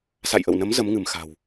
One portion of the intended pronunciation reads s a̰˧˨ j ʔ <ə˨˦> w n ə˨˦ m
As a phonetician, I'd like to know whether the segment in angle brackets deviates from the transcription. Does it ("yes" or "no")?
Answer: yes